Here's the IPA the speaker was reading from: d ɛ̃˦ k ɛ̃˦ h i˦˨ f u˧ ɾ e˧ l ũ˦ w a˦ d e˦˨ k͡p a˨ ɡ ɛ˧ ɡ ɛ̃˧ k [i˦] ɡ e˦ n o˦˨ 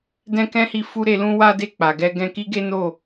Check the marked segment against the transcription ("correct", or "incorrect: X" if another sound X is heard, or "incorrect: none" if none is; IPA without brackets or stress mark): correct